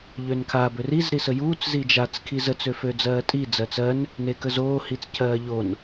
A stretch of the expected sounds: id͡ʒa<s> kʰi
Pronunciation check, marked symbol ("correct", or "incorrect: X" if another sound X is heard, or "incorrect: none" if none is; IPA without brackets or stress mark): incorrect: t͡s